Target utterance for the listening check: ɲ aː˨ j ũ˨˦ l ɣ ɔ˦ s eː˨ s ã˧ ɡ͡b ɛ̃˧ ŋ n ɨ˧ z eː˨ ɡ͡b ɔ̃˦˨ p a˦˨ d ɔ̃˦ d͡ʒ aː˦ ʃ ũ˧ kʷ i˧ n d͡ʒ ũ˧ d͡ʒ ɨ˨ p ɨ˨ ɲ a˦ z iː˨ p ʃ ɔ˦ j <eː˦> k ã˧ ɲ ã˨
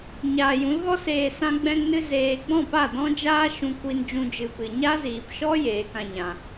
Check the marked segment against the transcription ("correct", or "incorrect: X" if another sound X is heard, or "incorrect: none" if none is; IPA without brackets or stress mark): incorrect: eː˨˦